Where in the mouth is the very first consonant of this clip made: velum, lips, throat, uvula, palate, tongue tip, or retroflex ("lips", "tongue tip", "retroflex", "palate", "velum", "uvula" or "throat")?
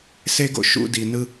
tongue tip